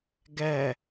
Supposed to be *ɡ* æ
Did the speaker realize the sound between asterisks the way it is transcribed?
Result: yes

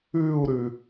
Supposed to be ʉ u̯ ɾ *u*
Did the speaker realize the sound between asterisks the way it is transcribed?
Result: no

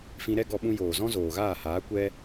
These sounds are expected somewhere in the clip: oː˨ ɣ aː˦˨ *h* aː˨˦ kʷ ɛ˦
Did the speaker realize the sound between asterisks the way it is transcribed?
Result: yes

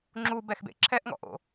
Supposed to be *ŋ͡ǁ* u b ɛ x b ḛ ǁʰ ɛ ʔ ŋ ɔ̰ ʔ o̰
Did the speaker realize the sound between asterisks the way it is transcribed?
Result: yes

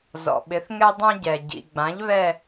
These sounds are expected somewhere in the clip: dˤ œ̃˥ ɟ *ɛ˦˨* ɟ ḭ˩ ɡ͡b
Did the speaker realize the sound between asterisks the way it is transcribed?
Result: no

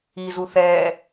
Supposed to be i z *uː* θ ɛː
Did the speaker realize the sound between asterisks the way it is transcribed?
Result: no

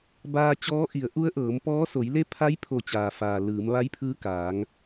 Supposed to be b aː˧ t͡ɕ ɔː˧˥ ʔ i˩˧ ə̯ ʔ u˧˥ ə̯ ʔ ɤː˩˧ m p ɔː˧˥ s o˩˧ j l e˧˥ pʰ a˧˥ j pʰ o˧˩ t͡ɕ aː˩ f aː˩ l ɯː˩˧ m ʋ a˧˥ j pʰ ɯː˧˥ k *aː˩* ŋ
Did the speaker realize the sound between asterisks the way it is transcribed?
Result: no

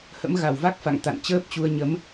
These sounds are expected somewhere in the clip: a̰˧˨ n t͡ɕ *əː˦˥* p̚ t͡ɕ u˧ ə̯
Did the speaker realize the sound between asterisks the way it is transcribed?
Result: yes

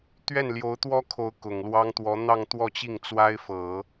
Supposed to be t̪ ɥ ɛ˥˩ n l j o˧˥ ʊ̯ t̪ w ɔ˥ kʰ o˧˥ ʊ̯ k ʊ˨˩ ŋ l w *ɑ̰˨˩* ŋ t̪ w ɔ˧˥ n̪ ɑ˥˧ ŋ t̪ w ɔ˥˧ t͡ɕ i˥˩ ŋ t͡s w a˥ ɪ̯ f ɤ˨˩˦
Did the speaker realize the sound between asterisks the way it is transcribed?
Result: no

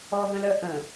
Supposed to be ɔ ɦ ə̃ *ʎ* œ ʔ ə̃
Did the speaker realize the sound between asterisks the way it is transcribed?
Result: no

